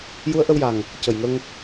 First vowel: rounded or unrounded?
rounded